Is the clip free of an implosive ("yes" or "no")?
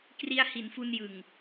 yes